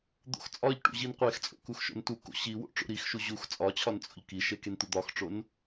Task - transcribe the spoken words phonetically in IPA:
d̪ o̰ x t͡sʼ ɒ ʎ ʈ ṵ ʑ i n qʷ e x t͡sʼ o̰ k u x ʃ o̰ n t u k o̰ ɕ i w o̰ ʈ͡ʂ o̰ ɾ i x ʃ u ʑ u x t͡sʼ ɒ t͡ɕʰ ɒ n t͡sʼ o̰ ʎ k i ʃ e k e n t̪ u d̪ ɒ x ʈ͡ʂ o n

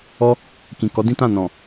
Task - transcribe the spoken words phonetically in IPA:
ɔ˧ | k ĩ˨ k ɔ˨˦ d ĩ˦ t ã˦˨ n ɔ̃˨

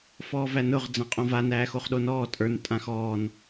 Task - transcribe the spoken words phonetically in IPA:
f ɔː v æ n ʊ ʁ d͡z ã qʼ õ v a n æː x o χ ɗ o n ɔː tʼ ə˞ n tʼ ã x ɔː n

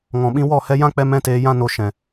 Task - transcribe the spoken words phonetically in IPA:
ŋ ɔ̃˨ ɓ ĩ˧ w ɔ˦˨ h ɛ˧ j ã˦ k͡p ɛ˧ m ɛ̃˦ t eː˧ j ã˦ n o˧ ʃ ɛ̃˨

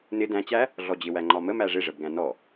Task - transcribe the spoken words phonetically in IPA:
n ɪ d æ̃ t͡ɕ æ | ɮ ɔ d͡ʑ ɪ w æ ŋ͡ǃ ɒ m ə m æ ʐ ɪ ʐ ə b ɡ æ̃ n ɔ

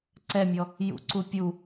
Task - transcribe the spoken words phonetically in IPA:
ǀ ɛ mʲ ɔ | j ṵ ǀ u pʲ u

